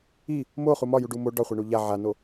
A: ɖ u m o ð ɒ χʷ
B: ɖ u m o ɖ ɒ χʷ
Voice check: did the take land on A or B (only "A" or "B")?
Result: B